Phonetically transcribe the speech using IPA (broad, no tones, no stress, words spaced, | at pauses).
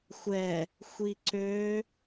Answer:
xʷɛ | xʷiǀø